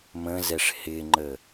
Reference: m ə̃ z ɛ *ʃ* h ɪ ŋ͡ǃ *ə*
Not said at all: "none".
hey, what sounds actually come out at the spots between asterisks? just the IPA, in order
ʂ, ə

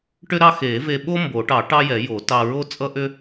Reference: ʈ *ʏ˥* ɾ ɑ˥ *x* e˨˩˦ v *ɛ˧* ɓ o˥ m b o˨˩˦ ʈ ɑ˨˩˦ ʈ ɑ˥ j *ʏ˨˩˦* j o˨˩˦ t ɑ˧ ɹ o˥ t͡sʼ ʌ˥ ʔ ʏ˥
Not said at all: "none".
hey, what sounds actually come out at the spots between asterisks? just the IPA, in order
ʏ˥, x, e˧, ɛ˨˩˦

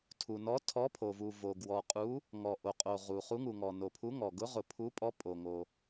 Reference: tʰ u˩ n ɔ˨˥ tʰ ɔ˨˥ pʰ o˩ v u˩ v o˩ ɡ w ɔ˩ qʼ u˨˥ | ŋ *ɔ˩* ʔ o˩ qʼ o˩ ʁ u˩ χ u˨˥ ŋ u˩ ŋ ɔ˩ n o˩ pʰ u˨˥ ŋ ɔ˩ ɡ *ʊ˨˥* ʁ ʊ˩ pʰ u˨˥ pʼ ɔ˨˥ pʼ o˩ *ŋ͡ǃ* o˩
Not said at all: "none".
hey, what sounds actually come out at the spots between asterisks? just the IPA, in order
ɔ˩, ʊ˨˥, ŋ

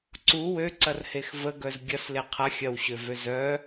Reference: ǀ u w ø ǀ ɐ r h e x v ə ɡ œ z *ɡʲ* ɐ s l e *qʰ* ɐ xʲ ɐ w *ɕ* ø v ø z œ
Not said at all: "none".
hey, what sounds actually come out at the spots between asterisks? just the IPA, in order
ɡʲ, qʰ, ɕ

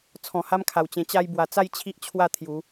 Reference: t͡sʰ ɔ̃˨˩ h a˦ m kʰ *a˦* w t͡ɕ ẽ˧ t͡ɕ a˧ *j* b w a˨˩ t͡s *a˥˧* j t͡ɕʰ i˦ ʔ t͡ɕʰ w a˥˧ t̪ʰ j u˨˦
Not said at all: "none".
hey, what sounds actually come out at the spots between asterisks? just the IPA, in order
a˨˩, j, a˥˧

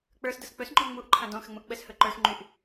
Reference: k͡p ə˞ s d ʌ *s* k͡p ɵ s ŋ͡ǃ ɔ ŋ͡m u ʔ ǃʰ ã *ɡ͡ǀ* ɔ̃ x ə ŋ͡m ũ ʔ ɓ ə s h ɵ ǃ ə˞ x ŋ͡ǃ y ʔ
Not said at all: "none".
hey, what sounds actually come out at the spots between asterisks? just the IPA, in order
s, d

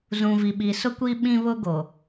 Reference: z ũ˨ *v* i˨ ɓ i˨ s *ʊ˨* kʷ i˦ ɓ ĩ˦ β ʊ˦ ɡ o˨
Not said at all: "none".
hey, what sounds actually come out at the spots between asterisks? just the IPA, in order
v, ʊ˦

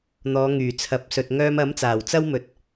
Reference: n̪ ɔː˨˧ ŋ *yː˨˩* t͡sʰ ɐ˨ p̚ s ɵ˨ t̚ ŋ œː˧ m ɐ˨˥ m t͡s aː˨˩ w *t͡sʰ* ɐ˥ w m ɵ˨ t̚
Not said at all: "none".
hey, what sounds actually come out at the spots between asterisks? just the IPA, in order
yː˨˩, t͡s

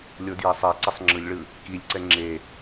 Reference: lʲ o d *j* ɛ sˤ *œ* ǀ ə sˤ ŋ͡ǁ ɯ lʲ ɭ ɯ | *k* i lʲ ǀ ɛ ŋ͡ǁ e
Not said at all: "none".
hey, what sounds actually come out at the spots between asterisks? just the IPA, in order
j, ɛ, k

